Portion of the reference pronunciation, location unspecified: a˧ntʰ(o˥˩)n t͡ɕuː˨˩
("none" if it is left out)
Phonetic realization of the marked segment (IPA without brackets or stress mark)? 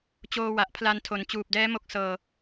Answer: o˩˦